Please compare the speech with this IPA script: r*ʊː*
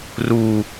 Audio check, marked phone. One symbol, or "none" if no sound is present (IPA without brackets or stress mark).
uː